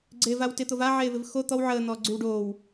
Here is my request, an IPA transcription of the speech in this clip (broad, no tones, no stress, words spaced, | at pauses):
ɡ͡ǀeːvawtɪt̪ov aʕeːvɪv xo t̪ɔw ʕəːn̪ɔː ɡ͡ǀywɖoːw